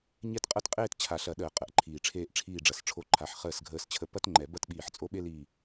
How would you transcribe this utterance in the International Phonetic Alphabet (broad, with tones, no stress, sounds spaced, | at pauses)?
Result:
ɲ ɛ˦ t qʼ ɐ˦ t qʼ eː˦ t t͡ɕʰ a˨˩˦ ɬ ɐ˨˩˦ ɗ əː˨˩˦ qʼ ə˩˧˩ ʔ ǃʰ iː˧˩ ʈ͡ʂʰ eː˦ ʔ ʈ͡ʂʰ iː˧˩ ɖ͡ʐ ɐ˩˧˩ s ʈ͡ʂʰ o˧˩ ǃʰ a˩˧˩ ħ χ əː˧˩ s ɡʱ əː˧˩ s t͡ɕʰ ə˧˩ p ɐ˦ t ŋ͡ǃ ɛ˨˩˦ b ɐ˦ t ɓ iː˧˩ ħ t͡sʼ o˦ ɓ e˦ l iː˧˩